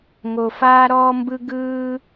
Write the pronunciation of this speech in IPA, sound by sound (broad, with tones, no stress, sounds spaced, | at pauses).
ŋ o˨ f aː˦ ɾ ɔː˦ m b ɯ˦ ɡ ɯː˦